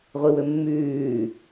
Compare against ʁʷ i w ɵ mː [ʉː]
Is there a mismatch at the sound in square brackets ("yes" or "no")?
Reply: no